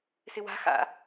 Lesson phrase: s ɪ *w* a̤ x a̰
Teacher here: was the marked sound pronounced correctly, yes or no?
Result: yes